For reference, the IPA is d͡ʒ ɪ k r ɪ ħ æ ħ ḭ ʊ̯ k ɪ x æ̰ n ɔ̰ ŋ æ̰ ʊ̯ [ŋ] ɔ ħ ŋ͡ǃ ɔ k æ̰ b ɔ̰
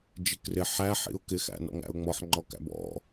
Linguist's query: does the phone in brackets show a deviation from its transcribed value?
yes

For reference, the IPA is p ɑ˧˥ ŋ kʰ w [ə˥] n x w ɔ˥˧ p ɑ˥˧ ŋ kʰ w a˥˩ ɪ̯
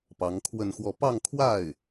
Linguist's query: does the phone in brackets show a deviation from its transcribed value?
yes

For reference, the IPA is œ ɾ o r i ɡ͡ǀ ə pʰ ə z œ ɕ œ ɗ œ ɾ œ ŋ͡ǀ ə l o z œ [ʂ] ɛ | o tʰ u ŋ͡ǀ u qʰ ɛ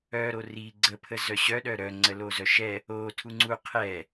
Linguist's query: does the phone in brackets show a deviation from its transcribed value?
yes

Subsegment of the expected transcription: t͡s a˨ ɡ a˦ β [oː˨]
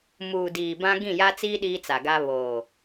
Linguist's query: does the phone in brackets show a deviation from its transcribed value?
no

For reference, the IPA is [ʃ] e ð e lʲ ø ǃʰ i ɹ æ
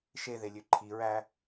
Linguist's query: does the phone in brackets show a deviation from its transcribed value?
no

